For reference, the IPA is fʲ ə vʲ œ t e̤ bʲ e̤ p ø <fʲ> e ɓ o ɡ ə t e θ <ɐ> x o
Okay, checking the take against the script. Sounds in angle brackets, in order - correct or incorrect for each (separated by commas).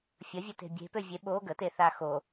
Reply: incorrect, incorrect